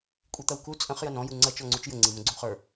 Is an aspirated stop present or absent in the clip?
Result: absent